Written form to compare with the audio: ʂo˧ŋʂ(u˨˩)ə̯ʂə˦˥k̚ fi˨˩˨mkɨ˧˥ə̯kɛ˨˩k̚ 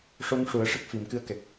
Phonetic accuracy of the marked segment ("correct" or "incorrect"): incorrect